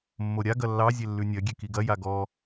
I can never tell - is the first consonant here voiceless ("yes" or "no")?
no